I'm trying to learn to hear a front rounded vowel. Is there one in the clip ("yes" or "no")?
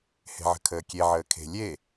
no